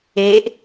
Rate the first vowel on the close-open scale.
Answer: mid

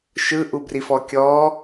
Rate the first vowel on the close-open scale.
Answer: close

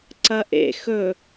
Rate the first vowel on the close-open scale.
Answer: open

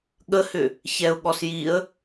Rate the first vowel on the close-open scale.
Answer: mid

